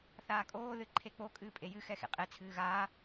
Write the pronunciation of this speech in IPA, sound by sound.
θ aː kʼ oː ð ɨ ǃʰ e k͡p o kʼ ɨː pʼ e j ɨ x ɛ x ḛ qʼ e t͡sʰ ɨː ɣ aː

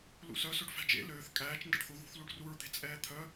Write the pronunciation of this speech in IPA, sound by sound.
l ṵ s œ s ɵ ɖ f æ̤ d͡ʒ ḛ l øː θ kʼ æː t͡ʃ n d ɛ̰ ɖ θ u ð ṳ θ l u ɖ r u ɹ d̪ e̤ t͡sʼ ɛː t̪ʰ œ

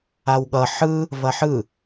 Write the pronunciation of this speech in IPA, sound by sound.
a w ɠ ʌ ħ ɯ | v ɐ ħ ɯ

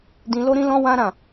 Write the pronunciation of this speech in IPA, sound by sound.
d ĩ˧ l o˦ ɾ ĩ˦ l ɔ̃˦ w ã˦ ɾ ã˦˨

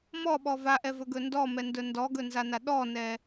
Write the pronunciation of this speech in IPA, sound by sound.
m ɔ ɓ ɔ v a ʔ ɛ v ɵ ɡ ɵ n d ɔ m ɛ n d ɵ n d ɔ ɡ ɵ n z a n a ɗ ɔ n ɛ

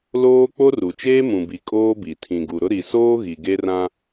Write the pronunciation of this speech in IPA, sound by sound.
l oː˦ k͡p o˦ r u˨ t͡ʃ eː˦ m ũ˨ b i˨ kʼ oː˦ b i˨ tʰ ĩ˨ ɡ u˨ ɾ ʊ˦ ɾ i˨ s oː˦ ɣ i˨ ɡ e˦ r ã˦

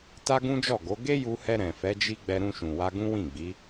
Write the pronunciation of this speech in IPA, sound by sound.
t a˦ ɡ ũ˦ d͡ʒ ɔ˦˨ ɡ o˨˦ ɡ e˦ j u˧ h ɛ˧ ɾ ɛ̃˨ f ɛ˨˦ d͡ʒ i˦ ɡ͡b ɛ˧ ɾ ũ˧ ʃ ũ˨ w a˧ ɡ ũ˦ w ĩ˦˨ ɡ͡b i˨˦

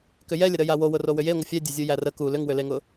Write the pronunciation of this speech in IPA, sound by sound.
k ʏ j ɛ lʲ ə ɾ ə j a w o w ʊ r o w ʏ j e ŋʷ ə fʲ ɛ dʲ ʊ zʲ u j æ r ə k u l ʏ ŋ w ʏ l e ŋ ʊ

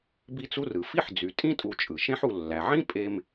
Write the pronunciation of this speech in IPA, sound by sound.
b i˦ t͡s u˦ r ɯ˩ f i˥ ħ d͡z y˩ tʼ ĩ˥ tʼ u˨ t͡ʃʼ ɯ˩ ʃ ẽ˦ ħ u˨ lː æ˩ ʕ ĩ˥ pʼ e˦ m

